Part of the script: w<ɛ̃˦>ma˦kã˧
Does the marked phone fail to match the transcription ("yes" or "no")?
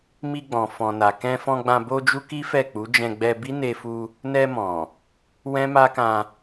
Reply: no